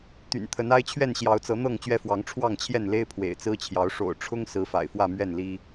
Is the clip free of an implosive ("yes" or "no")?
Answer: yes